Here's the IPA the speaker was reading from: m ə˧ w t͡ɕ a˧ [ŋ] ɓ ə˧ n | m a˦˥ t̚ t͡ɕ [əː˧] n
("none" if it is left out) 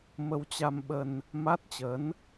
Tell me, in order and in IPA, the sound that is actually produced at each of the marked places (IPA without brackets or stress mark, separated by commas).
m, əː˨˦